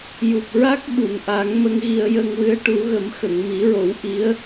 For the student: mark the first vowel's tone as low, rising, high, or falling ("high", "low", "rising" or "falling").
low